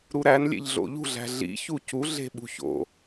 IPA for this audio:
ɾ u ɾ æ n lʲ ḛ ʎ ɮ o̰ ʎ ṳ ɮ æ̤ ɮ ḭ ç u c u ɮ e̤ ɓ ṳ ç o̰

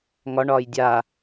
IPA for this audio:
ŋ ɒ ɳ ɒː j dʲ a

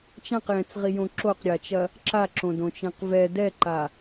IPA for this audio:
t͡ʃ ã q j ɛ̃ t͡s ʁ i j õ ǁ o q ɾʲ a t͡ʃ ɐ | ǁ a ǁ õ d õ t͡ʃ ẽ q v ɛ d ɛ ǃ a

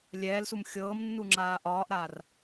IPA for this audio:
lʲ ɛː l s u m xʲ ɤː m nː u ŋ͡ǁ aː ʔ ɒː ʔ ɾ aː r

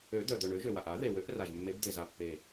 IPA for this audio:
ø˨˩˦ d̪ œ˨˩ d̪ œ˨˩ ɳ ø˨˩˦ ʒ ø˨˩ w a˨˩ ʔ a˨˩˦ ð e˨˩ w ø˨˩˦ ʔ r a˨˩ ʒ mː e˨˩˦ b d̪ e˨˩ z a˨˩ pː e˨˩

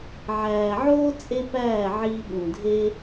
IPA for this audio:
ʕ æː˨ ʕ oː˦ t͡sʼ e˦ p æː˦˨ ʕ iː˧ ɓ ũ˨ dʱ e˦

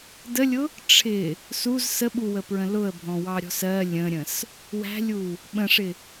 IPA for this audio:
d ə lʲ ʊ | ʈ͡ʂʰ ɪ | s u z s ə ɓ u w ə p ɹ ə̃ l ʊ ə̯ bʱ ɔ̃ w ɑ ɾʲ ɔ̤ s ɜ lʲ ə̃ ɾʲ ə̃ s | w æ̤ lʲ u | ɓ ə̃ ʂ ɪ

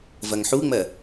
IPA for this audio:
v ɐ ŋ ħ u ŋ͡m ɜ

